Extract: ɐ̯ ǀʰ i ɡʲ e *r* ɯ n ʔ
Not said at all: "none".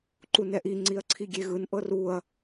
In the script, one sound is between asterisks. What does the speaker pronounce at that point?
ɣ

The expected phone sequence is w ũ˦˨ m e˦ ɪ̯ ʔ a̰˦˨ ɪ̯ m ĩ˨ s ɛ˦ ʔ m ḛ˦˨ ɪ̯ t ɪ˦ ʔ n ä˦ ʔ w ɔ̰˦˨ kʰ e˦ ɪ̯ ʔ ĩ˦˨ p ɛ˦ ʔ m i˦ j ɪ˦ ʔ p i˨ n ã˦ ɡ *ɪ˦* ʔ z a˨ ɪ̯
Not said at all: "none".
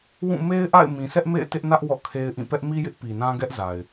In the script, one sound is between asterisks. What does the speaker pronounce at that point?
ɛ˦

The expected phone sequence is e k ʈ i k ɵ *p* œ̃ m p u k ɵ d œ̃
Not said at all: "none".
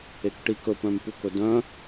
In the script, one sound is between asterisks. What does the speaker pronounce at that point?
p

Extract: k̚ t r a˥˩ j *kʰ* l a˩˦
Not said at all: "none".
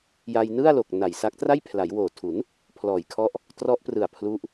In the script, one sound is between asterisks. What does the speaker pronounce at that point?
pʰ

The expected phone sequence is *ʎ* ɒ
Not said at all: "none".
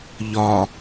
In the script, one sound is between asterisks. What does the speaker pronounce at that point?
ʎ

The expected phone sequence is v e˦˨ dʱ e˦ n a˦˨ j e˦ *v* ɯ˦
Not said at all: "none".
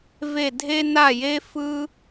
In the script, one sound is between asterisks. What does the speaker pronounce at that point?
f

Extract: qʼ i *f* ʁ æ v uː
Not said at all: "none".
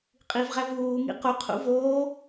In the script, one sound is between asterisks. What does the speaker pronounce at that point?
v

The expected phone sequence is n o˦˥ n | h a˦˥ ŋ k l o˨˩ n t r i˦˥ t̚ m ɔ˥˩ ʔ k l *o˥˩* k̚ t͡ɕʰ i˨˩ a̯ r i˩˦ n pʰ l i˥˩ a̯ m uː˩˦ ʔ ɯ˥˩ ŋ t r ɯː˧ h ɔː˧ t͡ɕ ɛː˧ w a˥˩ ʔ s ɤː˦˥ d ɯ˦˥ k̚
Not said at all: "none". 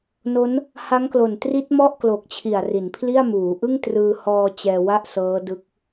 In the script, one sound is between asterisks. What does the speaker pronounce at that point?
o˨˩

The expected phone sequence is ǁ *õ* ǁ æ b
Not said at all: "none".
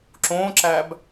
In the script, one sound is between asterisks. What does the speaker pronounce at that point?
õ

